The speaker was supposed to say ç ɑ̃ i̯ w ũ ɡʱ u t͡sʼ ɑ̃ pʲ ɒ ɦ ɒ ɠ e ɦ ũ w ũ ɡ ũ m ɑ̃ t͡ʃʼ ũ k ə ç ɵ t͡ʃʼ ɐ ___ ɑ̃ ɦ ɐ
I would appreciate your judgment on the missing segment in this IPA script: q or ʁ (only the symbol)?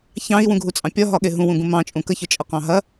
q